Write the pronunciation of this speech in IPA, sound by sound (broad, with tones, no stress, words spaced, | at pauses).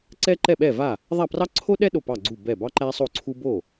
ǀɛ˥ǃɛ˥˩ɓɛ˥˩va˥˩ | ðˤa˥˩prɑ˥ ǀʰo˥ɗɛ˥ ɗo˥˩pɑ˥˩ɡ͡ǀu˥˩ bɛ˥˩ bɑ˥ǃæ˥sˤo˥˩ǀʰu˥ bo˥˩